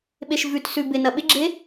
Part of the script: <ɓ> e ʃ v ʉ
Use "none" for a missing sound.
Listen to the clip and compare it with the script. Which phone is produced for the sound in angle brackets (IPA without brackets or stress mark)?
ɓ